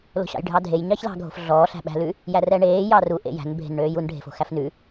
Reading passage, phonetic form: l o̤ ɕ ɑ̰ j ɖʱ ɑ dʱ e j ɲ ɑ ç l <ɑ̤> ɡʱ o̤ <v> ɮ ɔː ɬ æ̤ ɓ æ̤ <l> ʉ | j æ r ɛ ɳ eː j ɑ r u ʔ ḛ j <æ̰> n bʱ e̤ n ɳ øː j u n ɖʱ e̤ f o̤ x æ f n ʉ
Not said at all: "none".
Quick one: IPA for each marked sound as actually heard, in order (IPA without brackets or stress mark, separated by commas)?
ɑ̤, f, l, æ̤